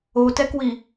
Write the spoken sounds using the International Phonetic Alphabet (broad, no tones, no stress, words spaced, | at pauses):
otɛkwi